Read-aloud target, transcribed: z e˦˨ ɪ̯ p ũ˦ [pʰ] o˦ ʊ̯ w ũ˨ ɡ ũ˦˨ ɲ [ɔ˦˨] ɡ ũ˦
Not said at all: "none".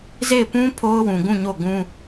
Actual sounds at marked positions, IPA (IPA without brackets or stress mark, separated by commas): pʰ, o˦˨